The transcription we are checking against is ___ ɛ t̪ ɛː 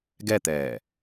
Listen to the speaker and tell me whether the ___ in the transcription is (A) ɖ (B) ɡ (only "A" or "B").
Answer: B